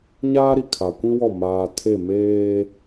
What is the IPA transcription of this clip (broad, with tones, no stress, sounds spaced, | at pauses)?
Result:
ɲ aː˦ ɾ i˨ kʰ a˨ kʷ ĩ˦ w ɔ˦˨ m aː˨ tʰ e˦˨ m eː˦